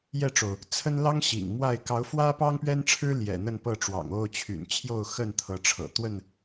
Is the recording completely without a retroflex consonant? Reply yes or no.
no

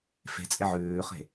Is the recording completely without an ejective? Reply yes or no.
no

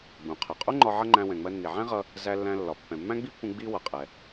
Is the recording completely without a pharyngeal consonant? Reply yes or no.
no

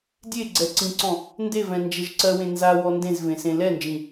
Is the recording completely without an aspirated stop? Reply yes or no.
yes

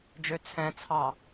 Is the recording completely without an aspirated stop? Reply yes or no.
no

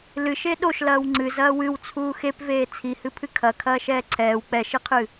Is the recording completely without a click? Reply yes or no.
no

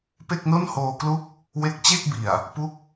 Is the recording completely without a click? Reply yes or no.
yes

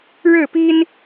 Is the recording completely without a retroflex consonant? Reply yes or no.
no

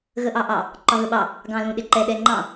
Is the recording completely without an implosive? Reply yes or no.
no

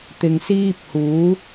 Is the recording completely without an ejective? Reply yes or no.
yes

